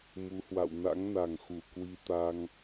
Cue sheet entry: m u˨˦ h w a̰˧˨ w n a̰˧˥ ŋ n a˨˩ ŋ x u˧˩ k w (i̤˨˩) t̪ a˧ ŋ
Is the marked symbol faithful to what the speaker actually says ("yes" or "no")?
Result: no